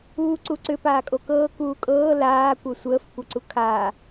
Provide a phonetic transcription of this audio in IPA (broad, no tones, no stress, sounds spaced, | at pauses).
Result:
uː ǀ u ǀ ʏ p aː kʼ o k ɤː k uː kʼ ɤː l aː kʷ ɤ sʷ əː f kʷ ɤ ǀ u kʰ aː